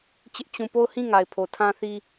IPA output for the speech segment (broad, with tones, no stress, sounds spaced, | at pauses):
t͡ɕ ɪ˦ ʔ t͡ɕ ũ˦˨ p o˦˨ ʊ̯ h ĩ˦˨ ŋ a˨ ɪ̯ pʰ o˨ tʰ ã˦ θ i˦